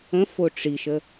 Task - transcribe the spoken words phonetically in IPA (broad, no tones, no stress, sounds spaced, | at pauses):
ə̃ f o ʈ͡ʂ i ʃ ə